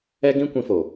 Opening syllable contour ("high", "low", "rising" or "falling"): high